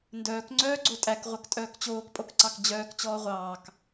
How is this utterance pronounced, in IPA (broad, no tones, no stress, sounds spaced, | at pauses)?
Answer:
n d œː k ŋ͡ǀ œː ɡ͡ǀ o tʼ æ k ʁʷ œ k tʼ œː k t͡ɕ oː k pʼ o k ǀ ɑ k d͡ʑ œː k t͡ɕ ɔː ʁʷ ɑː k